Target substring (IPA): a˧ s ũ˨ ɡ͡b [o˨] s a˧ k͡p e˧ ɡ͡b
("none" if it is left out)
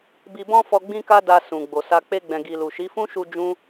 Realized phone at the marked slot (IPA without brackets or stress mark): o˨